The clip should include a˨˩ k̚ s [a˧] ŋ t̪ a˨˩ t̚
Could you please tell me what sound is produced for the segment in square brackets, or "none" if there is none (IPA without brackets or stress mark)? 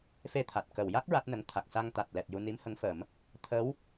a˧